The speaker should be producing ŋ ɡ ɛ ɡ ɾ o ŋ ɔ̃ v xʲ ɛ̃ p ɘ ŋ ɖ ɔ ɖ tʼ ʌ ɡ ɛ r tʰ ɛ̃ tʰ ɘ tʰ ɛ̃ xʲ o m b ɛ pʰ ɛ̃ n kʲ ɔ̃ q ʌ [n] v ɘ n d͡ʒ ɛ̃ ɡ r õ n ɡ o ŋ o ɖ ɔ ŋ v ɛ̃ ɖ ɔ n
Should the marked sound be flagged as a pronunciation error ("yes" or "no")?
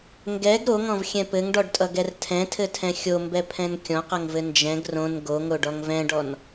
yes